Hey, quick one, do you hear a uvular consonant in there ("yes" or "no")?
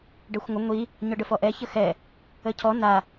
no